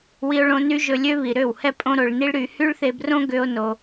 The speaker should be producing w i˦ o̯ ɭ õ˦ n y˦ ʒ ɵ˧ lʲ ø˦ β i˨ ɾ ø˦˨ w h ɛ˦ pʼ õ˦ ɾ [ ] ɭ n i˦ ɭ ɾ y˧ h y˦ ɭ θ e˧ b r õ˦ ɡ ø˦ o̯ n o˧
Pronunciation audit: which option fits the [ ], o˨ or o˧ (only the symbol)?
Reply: o˧